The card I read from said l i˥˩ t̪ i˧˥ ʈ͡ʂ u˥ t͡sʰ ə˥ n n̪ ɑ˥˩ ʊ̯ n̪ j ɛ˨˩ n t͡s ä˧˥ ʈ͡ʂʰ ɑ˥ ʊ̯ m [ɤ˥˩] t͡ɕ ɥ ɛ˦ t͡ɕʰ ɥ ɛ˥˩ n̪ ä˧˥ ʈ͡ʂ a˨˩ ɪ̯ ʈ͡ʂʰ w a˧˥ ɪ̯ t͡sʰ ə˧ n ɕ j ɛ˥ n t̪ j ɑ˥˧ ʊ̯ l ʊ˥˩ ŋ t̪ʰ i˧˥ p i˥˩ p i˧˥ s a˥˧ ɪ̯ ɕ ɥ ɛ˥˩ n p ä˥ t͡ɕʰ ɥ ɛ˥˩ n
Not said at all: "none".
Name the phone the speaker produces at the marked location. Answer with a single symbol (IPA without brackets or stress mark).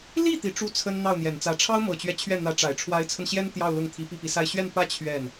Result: ɤ˨˩